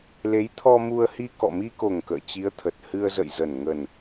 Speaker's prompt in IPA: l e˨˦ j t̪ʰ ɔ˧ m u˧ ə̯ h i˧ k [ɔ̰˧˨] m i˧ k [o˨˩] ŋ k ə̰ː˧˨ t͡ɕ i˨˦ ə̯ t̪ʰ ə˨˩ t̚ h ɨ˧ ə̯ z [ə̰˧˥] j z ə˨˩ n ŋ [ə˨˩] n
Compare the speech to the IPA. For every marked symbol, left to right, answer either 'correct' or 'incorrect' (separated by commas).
correct, correct, incorrect, correct